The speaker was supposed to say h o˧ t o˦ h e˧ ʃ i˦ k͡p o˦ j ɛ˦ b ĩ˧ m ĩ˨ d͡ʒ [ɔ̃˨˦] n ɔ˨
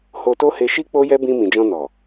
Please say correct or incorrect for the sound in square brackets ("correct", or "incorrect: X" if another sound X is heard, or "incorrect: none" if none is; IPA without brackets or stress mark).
incorrect: ɔ̃˧